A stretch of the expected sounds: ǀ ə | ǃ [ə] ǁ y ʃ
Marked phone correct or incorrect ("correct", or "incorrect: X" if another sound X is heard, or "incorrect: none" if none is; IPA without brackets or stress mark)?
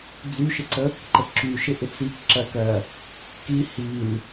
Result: correct